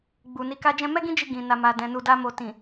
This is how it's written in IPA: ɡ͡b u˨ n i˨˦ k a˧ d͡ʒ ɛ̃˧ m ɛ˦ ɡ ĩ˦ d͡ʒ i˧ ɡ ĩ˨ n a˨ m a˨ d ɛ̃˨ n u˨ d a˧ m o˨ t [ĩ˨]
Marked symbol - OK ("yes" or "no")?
yes